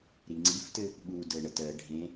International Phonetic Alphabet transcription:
ɾiŋ͡ǀiftɘ | ɓu dəɳət ɜ ɖʱẽ

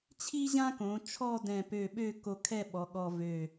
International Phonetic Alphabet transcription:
t͡ɕʰi˥ʑã˥kõ˩˧ t͡ʃʰɔ˥˧dɛ̃˧˩pø˧˩ɓø˥˧ ko˧kʰɛ˥˧ɓɔ˩˧ ɠɔ˧vø˧˩

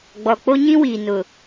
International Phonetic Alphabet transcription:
ɡ͡bɔ˨k͡po˦ɲĩ˦ wiː˨nʊ˨

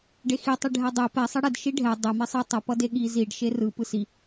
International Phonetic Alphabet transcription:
ɖexi tˤiɖʱɛdˤe pɛ sˤʌɽɛd ʃiɖʱɛ dˤe misˤɯ tˤʌ pʌdeɠi ziɖ ʃerɯ pɯsi

